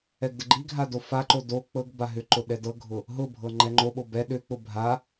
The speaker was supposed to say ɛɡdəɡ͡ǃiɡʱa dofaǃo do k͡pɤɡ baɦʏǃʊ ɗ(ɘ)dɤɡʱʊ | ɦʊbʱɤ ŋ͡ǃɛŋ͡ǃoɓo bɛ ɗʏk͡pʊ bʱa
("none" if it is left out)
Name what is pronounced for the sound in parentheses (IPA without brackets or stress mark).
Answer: ɛ